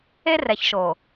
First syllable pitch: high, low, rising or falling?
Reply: high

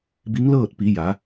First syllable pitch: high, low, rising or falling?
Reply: rising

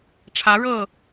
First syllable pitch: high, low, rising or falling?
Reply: rising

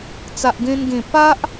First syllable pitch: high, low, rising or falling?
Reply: low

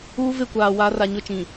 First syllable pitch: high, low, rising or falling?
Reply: high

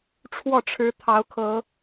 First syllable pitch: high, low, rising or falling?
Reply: falling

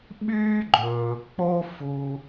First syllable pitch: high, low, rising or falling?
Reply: high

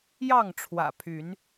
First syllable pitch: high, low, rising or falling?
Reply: falling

